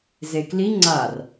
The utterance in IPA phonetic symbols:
zekli ŋ͡ǀar

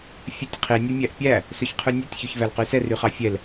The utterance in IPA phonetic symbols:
fʲʉtʲqʰi nʲʉmʲæʔpʲæ | søçqʰʉnʲøtʲ çʉçvælqysɛr yχɑfʲɛl

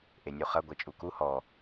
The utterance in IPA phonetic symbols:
ʔenʲuχɐ ɡʷet͡ʃʼuku hɔ

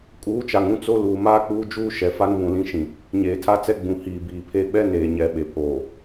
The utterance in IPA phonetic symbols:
kʼuː˨˦t͡ʃa˨ŋ ũ˦t͡so˦ luː˨maː˦k͡puː˦ d͡ʒuː˦ ʃɛ˨ fa˦nβũ˨lĩ˦ ʃĩ˨ | ɲeː˨tʰa˦t͡sɛ˦ ɡ͡bũ˨hiː˨biː˨pʰe˦ ɓɛ˦ neː˨ɲɛ˨ ɓe˨pʰoː˨

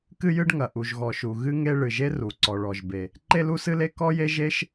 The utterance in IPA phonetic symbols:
kɨ˥jɨ˥ɖŋɐ˩ ʔu˩ʒɣɔ˩ʃu˩ ɣɨ˥ŋe˥ ɭɨ˩ʒe˥ ru˩ǀɔ˩ ɭɔ˩ʒbe˩ | ǃe˥lu˥sɨ˥le˥ kɔ˥je˥ʒe˥ʃ

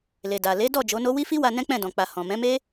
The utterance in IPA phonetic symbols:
le˨da˨ le˨˦dɔ˦˨ d͡ʒo˨˦no˦ wi˦fi˦wa˧ nɛ̃˦k͡pɛ̃˦˨dɔ̃˨k͡pa˨ hɔ̃˨ mɛ̃˨˦me˦

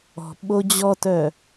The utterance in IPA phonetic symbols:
ɔ̤ ɓod͡ʑɔtœ

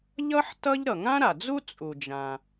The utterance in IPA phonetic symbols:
ʎʌ˥ħ tʌ˥ʎ ɾʌ˩ŋã˥ɾa˩d͡zu˥ t͡sʼu˩d͡ʒã˩

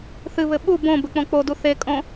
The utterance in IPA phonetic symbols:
θɨβɘ ɓu bõbɘ k͡põk͡podu θekʼõ

